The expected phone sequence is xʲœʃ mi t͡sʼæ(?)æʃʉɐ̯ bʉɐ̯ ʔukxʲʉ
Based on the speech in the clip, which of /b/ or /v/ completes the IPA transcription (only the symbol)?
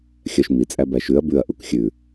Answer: b